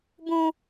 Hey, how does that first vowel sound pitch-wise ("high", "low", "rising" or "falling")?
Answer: high